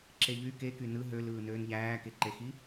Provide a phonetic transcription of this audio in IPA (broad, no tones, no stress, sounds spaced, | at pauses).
ǁ e ʎ y k e k y n ɯ ɦ ø l ɯː n øː n ʎ æː k e ǃ e x i